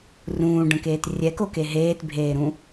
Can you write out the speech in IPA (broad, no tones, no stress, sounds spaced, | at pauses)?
r ũː ɖ ə̃ k eː t rʲ ɛ k o k e ɦ eː t bʱ eː ɾ ũ